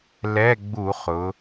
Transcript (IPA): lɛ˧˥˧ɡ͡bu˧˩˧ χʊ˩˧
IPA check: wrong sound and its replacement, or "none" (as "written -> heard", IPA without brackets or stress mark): none